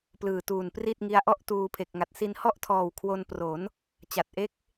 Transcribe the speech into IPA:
p l ɯː˨˩ t uː˨˩ n p r i˥˩ t̚ ŋ i˦˥ a̯ ʔ ɔ˥˩ ʔ t uː˧ pʰ e˨˩ k̚ ŋ a˨˩ t̚ s i˧ n h ɔ˥˩ ʔ tʰ ɔː˨˩ w kʰ w o˧ n p r o˩˦ n | t͡ɕ a˨˩ t̚ ʔ e˦˥ k̚

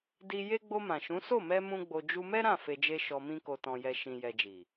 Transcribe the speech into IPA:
d i˧ j e˦ ɡ͡b o˧ m ã˨ ʃ ũ˨˦ s o˦˨ m ɛ˧ m ũ˦ ɡ͡b o˧ d͡ʒ u˧ m ɛ˦ ɾ ã˦˨ f e˧ d͡ʒ e˦ ʃ ɔ˧ m ĩ˦ k o˧ t ɔ̃˧ j ɛ˧ ʃ ĩ˨ j ɛ˨ d͡ʒ i˨

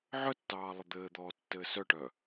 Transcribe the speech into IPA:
ʕ œ tː ɑː lˠ ə d̪ ɘː d̪ ɔː tː ɘː s œ ʈ œ

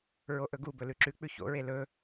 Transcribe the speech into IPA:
ɹ o ʔ ɵ ɡ u b ɵ l ʉ ǁ ʉ k͡p ʉ ç o̰ ɹ e l ɵ

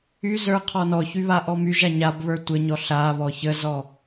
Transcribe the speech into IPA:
y z ə˞ qʰ ɔ n ɔ ç y β a ʔ ɔ m y ʒ a ɲ a b β ə˞ tʷ ə ɲ ɔ ɬ a β ɔ ç ə z ɔ

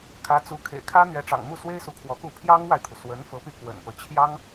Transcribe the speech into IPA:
kʰ ä˧˥ t͡s u˧˥ kʰ ḛ˨˩ ɪ̯ kʰ ä˥ n̪ ɥ ɛ˧˥ ʈ͡ʂ ɑ̰˨˩ ŋ m u˥˩ s w e˥ ɪ̯ s u˧˥ kʰ w ɔ˧˥ k u˥˩ pʰ j ɑ˥ ŋ w a˨ ɪ̯ t̪ʰ u˩ s w ə˧˥ n f ɤ˧˥ p y˧ k w ə̰˨˩ n p ɤ˦ t͡ɕʰ j ɑ˥ ŋ

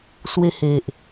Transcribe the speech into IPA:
s w e˧ h e˨ ʔ

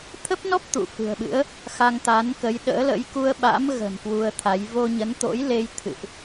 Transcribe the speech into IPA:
t̪ʰ ə˦˥ p̚ n ɔ˦˥ p̚ t̪ ṵ˧˨ f ɨ̤˨˩ ə̯ ɓ ɨ̰˧˥ ə̯ | x a˧ ŋ t̪ a˨˦ n k ə˨˦ j ɗ ə̰ː˧˥ l ə̰˧˥ j k u˧ ə̯ ɓ a̰˧˥ m ɣ ə̤˨˩ n k w u˧ ə̯ t̪ʰ a˨˦ j v o˧ ɲ ə˨˦ n t̪ o̰˧˥ j l e˧ j t̪ʰ ɨ̰˧˨ ʔ

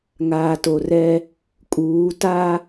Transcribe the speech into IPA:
ŋ aː˨ t o˨ r ɛ˦ | kʼ uː˨˦ t a˦

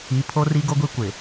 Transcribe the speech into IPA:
i˨˦ pʰ o˦ r i˦ ɡ o˦ ɡʷ i˦ kʷ ɪ˨

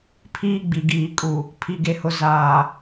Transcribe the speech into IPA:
pʰ iː˦ ɡ͡b i˨ ɡ iː˨ kʼ u˨ | pʰ i˨ ɡ e˨ h ʊ˨ z aː˨

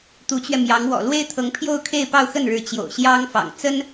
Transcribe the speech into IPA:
t̪ u˧˥ t͡ɕ ɥ ɛ˧ m j ɑ˧˥ ŋ w ɔ̰˨˩ l w e˥ ɪ̯ t̪ʰ ɤ˧˥ ŋ pʰ j o˥˧ ʊ̯ kʰ e˥˧ ɪ̯ p ɑ˥˧ ʊ̯ x ə˥˩ n ɻ ɻ̩˧˥ t͡ɕ j o̰˨˩ ʊ̯ ɕ j ɑ˥ ŋ f ɑ̰˨˩ ŋ t͡s ə˥ n

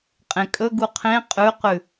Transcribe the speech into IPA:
qʼ ẽ kʼ ɵ ɡ u qʰ ẽ qʼ ʉ q ʉ

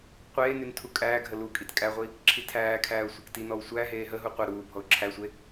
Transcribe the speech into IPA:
qʷ eː n y n tʰ u kʼ æː ɡʱ ə l u kʼ i t kʼ æ ʁʷ i | ǁʰ i tʰ æː kʰ æː ʊ̯ sʷ a k t i n ɔ w sʷ æ ɦ eː ɦ ə ɦ u qʷ ə ɾ uː bʱ ɔ ʊ̯ ǁʰ æ sʷ e

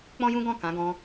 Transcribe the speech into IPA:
k͡p ɔ̃˦ j ũ˦ ɡ ɔ̃˦˨ k ã˨˦ ɡ ɔ̃˧

